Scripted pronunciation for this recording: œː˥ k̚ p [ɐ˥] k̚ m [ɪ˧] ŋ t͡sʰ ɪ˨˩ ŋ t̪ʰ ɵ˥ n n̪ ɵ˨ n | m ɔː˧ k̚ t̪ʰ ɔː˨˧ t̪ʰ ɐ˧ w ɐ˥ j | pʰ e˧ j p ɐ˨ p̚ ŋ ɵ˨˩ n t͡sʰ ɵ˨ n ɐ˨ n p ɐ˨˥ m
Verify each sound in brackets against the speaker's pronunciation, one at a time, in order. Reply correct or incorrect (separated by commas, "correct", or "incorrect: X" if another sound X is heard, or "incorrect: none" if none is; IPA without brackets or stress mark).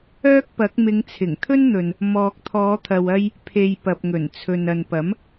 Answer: incorrect: ɐ˨˥, incorrect: ɪ˨˧